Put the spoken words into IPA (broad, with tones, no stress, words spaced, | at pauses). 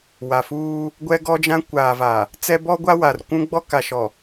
wa˨fuː˦ | ɡʷɛ˦ɡɔ˦d͡ʒã˦ kʷaː˨va˨ | t͡sɛ˦bɔ˦ɡʷa˦ wa˨r kʷũ˦ɡ͡bɔ˦ ka˨ʃɔ˨